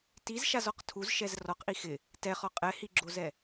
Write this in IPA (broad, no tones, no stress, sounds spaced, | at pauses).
t i z ʃ a z ɔ q tʰ u z ʃ ɛ z r ɔ q ʔ i x ɪ | t ɛ χ ɔ qʼ ɛ h i ɡ͡ǁ o z ɛ